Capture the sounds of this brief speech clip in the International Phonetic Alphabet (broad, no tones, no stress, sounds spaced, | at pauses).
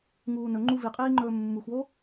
ŋ uː n ɵ ŋ͡ǃ u v i qʼ iː ŋ͡ǃ ɵː mː u x w o